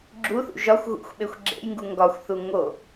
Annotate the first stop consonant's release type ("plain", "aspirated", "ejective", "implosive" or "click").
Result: click